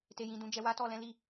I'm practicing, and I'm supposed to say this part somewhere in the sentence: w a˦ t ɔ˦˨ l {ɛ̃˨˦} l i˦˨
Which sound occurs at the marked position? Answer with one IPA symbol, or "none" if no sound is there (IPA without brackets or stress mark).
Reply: ɛ̃˨˦